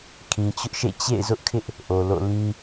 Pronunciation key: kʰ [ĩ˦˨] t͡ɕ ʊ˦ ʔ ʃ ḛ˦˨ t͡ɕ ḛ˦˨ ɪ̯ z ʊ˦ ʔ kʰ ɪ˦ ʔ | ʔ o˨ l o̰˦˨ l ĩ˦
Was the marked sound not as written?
yes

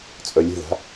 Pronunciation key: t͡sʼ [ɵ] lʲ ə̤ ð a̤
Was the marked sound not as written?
yes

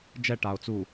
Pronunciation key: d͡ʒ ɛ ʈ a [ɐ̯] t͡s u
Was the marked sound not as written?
yes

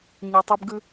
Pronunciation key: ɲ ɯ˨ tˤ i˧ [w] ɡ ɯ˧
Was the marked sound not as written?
yes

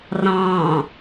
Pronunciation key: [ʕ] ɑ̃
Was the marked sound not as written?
yes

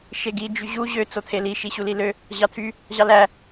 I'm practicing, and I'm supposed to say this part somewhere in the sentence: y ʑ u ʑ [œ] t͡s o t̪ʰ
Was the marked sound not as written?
yes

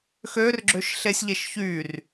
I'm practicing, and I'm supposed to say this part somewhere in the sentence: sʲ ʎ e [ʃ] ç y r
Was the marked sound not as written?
no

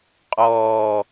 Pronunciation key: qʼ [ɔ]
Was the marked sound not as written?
yes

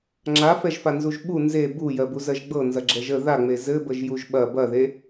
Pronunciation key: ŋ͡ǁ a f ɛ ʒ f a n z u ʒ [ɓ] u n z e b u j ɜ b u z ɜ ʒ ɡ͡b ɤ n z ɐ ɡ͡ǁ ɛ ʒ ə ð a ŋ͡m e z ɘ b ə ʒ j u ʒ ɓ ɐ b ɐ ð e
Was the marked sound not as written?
no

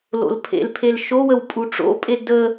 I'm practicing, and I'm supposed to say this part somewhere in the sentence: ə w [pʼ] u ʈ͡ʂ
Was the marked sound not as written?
no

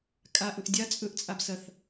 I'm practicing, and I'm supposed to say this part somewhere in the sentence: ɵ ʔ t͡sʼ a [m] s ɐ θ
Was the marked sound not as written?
yes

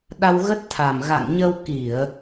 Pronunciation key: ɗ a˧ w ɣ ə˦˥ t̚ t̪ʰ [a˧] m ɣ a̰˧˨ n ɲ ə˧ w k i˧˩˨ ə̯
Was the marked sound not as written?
yes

